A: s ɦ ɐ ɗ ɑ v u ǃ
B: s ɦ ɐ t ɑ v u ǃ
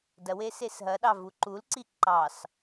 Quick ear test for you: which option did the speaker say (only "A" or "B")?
A